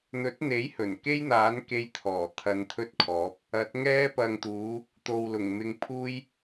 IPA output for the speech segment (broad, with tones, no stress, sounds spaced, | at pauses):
n̪ ɵ˨˥ t̚ n̪ e˨˥ j h ɵ˨˩ n k e˥ j n̪ aː˨˥ n k e˧ j t̪ʰ ɔː˨˩ t̪ʰ ɐ˧ n t̪ʰ ɵ˥ t̚ kʰ ɔː˨˥ p̚ | ɐ˨˥ t̚ ŋ ɛː˧ p ɐ˨ ŋ t̪ uː˨˧ | t̪ o˨ w l ʊ˨˩ ŋ m ɪ˧ ŋ pʰ uː˥ j